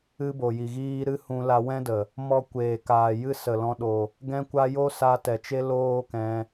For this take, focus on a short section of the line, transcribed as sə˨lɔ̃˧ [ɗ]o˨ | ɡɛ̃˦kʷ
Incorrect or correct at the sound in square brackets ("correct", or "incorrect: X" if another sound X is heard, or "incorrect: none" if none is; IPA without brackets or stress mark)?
correct